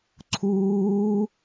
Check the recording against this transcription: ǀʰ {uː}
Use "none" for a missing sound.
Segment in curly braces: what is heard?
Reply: uː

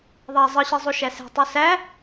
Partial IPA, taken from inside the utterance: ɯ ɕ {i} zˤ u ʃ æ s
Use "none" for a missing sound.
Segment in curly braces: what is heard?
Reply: i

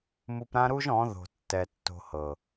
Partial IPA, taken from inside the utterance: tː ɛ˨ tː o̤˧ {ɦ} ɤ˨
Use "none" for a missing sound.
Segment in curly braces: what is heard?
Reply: h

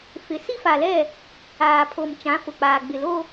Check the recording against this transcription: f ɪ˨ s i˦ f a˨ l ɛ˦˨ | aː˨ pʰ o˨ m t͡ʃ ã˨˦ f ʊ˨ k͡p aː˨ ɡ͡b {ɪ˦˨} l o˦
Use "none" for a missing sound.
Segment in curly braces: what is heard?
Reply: ɪ˨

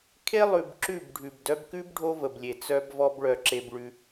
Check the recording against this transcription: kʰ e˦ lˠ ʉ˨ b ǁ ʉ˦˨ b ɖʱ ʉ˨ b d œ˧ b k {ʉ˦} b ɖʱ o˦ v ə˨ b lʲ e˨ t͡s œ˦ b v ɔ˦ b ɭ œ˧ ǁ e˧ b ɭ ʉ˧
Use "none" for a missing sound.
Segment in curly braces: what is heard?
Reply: ʉ˦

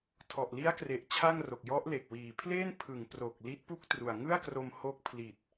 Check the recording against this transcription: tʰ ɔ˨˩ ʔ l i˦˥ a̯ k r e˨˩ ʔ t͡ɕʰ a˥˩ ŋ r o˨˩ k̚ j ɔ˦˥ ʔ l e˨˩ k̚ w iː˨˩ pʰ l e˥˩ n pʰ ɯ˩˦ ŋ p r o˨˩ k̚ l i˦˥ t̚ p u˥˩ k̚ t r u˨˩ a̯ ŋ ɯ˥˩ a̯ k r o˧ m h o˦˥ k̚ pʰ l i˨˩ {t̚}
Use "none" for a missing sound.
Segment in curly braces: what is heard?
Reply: t̚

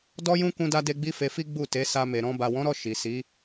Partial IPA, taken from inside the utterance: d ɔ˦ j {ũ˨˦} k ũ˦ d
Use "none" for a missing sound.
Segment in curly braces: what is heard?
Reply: ũ˦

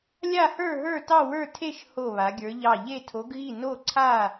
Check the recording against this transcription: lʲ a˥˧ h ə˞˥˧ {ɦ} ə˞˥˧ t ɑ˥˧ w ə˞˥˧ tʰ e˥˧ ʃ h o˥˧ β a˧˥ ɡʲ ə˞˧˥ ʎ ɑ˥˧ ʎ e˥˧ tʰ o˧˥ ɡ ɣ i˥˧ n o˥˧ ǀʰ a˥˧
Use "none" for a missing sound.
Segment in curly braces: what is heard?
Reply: ɦ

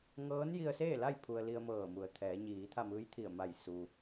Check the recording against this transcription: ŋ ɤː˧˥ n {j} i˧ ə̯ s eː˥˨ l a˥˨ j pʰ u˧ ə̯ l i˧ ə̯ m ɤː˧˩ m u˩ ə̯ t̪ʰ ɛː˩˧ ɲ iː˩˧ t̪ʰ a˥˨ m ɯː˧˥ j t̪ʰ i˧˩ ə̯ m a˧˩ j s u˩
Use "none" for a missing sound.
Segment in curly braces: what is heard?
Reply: j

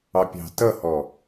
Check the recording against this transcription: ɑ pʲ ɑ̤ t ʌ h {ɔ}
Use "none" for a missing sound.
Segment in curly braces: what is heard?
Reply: ɔ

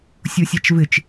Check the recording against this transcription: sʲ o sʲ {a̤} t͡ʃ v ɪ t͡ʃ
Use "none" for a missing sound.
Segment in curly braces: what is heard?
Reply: a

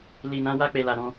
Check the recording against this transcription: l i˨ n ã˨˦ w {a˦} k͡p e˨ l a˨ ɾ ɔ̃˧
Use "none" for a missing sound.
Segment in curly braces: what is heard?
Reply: a˧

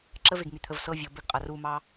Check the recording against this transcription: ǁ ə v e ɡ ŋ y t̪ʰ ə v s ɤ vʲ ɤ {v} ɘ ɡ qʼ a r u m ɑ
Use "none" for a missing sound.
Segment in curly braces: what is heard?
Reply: b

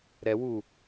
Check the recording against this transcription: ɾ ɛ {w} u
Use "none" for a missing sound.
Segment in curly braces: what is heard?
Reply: w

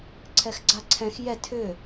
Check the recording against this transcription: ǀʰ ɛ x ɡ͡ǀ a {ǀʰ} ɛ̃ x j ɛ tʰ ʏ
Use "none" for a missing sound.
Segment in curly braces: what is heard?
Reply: ǀʰ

